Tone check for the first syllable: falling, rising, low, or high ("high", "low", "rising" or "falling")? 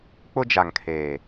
high